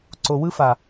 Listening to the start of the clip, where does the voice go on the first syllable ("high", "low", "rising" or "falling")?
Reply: low